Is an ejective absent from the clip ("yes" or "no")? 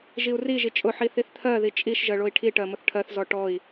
no